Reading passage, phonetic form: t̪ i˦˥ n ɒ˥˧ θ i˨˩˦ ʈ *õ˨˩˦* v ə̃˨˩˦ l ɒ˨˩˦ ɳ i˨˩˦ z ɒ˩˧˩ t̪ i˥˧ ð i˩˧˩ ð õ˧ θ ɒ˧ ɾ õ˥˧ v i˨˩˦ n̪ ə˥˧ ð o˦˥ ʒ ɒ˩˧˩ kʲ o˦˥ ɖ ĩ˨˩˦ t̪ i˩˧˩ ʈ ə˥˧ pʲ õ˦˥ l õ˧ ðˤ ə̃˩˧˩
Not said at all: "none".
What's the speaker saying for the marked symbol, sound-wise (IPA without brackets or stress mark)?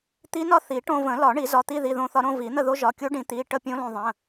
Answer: õ˧